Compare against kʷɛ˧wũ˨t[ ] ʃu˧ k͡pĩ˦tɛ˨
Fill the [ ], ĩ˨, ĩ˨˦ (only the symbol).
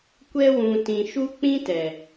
ĩ˨